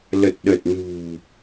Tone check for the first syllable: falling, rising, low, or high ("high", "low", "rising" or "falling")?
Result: low